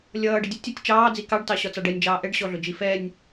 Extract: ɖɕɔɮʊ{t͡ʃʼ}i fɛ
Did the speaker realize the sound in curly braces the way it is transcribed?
no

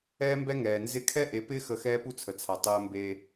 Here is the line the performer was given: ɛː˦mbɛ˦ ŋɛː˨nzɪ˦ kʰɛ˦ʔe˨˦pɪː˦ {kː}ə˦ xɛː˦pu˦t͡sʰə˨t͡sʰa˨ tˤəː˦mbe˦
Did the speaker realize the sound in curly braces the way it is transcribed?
no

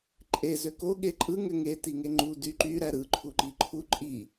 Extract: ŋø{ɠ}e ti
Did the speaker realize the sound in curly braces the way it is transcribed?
no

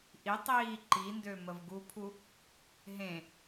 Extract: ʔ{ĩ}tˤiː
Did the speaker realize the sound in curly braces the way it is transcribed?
no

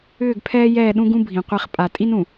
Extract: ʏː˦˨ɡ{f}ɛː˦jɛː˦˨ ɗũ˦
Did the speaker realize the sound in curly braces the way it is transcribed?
no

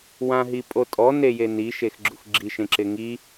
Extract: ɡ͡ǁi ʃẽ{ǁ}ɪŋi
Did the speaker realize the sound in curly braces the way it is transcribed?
yes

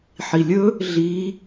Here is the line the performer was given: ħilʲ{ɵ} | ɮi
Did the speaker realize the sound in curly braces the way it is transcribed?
yes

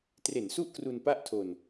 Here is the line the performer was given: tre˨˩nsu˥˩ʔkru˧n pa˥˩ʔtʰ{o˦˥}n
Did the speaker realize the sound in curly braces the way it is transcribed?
no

